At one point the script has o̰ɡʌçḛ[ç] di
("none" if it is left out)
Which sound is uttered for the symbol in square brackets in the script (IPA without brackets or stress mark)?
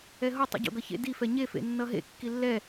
none